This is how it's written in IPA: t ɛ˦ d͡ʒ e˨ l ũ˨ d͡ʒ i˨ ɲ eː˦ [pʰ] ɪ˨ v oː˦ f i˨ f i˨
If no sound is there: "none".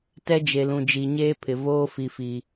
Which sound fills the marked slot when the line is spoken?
pʰ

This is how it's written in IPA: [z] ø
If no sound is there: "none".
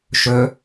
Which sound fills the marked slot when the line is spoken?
ʃ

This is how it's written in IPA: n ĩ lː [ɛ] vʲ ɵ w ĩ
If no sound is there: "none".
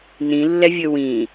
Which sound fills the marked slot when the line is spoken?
ɛ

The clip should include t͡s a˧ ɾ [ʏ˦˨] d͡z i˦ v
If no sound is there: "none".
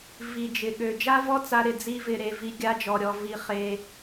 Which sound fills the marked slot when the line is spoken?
ɪ˦˨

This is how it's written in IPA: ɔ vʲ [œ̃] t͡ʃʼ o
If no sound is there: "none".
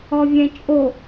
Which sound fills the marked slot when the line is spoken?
ɛ̃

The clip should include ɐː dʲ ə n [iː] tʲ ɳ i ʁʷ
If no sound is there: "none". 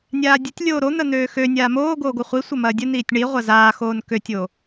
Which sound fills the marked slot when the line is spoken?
iː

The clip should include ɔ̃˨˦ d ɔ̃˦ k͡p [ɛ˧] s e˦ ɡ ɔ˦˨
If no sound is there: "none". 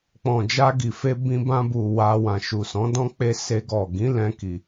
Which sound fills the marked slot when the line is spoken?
e˧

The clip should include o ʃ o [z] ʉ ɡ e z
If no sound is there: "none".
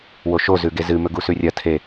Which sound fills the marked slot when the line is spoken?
z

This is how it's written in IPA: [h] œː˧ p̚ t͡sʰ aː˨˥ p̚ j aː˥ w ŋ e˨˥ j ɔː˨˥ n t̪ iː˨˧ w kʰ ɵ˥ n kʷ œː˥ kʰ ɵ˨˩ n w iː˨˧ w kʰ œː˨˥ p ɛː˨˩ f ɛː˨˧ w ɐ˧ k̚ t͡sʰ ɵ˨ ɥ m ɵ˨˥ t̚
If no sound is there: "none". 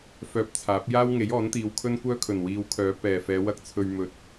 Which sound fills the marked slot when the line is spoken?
f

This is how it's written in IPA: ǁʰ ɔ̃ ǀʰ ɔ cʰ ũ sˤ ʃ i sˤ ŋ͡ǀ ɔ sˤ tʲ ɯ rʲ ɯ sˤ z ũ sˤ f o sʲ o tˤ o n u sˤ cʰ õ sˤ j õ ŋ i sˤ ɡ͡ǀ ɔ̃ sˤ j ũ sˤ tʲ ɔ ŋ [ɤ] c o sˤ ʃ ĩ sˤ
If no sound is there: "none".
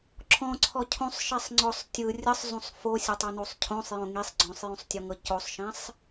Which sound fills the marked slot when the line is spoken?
ɤ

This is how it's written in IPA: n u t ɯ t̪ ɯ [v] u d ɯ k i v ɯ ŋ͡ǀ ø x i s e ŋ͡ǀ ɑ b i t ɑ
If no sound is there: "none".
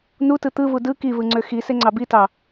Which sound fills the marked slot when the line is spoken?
v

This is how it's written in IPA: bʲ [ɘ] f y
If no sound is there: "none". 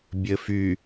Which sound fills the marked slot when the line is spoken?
ɘ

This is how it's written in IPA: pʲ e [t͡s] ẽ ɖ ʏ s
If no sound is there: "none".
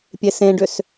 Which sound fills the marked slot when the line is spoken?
s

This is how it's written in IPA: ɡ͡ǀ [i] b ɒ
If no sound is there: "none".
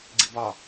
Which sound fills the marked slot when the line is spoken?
i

